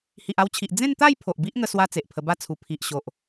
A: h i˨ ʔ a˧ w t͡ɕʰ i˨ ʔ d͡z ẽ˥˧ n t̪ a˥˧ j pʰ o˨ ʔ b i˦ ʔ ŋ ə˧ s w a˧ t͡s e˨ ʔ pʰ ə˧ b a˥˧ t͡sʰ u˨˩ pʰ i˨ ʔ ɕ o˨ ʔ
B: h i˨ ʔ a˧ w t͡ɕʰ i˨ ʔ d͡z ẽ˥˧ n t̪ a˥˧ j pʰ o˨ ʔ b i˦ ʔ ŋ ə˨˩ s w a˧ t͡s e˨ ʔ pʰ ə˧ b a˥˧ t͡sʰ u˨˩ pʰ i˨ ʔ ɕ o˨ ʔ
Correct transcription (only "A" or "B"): A